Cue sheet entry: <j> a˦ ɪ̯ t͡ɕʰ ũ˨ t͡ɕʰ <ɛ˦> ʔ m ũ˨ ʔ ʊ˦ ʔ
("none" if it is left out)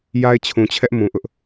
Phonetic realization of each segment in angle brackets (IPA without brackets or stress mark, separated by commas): j, ɛ˦